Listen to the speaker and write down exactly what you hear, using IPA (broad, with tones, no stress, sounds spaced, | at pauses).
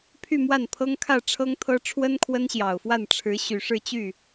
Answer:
pʰ y˥˧ m w a˥˩ n pʰ ɤ˥ ŋ kʰ ä˥˩ ʈ͡ʂʰ ɤ˥ ŋ t̪ʰ ɤ˥ ʈ͡ʂʰ w ə˥ n kʰ w ə˥ n ɕ j ɑ˨˩ ʊ̯ f w a˥˩ n ʈ͡ʂʰ ɻ̩˧˥ ɕ y˨˩ ʂ ɻ̩˥˧ t͡ɕ y˥˩